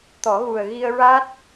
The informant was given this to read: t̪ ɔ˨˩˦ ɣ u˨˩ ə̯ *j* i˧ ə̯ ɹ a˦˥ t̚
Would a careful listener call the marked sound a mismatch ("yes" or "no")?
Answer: yes